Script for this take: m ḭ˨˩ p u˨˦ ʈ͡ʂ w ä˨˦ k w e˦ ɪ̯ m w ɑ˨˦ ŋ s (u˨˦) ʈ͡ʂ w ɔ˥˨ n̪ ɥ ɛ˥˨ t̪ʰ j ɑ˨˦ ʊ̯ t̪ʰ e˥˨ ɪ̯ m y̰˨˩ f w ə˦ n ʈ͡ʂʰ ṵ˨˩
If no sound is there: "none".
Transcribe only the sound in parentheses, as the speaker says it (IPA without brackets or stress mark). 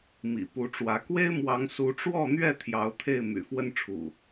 u˨˦